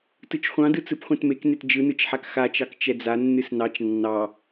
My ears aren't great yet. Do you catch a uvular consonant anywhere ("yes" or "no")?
yes